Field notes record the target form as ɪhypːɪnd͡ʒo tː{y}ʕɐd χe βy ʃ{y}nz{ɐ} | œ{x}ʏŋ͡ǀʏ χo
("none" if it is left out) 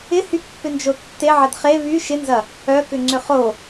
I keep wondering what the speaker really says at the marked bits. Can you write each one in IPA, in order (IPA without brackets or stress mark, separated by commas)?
e, ɪ, ɐ, k